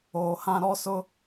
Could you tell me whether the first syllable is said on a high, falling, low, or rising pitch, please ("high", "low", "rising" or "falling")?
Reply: low